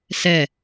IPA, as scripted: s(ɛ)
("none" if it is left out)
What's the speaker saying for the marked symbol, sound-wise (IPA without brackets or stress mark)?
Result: ɛ